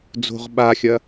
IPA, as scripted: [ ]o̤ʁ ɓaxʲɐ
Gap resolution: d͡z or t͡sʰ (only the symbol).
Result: d͡z